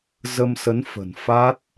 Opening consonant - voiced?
yes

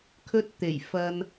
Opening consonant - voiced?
no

